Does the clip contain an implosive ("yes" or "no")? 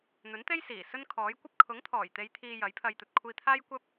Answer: no